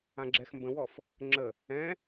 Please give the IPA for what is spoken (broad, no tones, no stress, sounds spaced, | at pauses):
ã ɡ͡ǁ ɛ x m b ə̃ w ɔ f | ŋ͡ǁ ə | ɛ̃